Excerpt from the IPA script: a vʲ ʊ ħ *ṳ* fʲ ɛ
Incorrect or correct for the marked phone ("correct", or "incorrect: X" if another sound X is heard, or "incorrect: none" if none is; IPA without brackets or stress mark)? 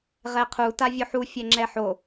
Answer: incorrect: u